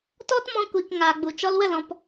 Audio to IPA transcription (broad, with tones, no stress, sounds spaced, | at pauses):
t ɔ˦ t m ɔ̃˧ kʷ i˨ k ŋ aː˨ ɡ͡b u˨ t͡ʃ ɔ˧ l w ə˦˨ l ɔ̃˨ p